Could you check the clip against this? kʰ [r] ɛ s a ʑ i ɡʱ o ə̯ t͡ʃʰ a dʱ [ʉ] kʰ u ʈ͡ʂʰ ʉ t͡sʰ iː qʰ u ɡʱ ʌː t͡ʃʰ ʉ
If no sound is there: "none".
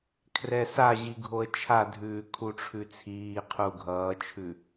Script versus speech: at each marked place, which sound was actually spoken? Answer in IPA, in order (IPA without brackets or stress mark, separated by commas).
r, ʉː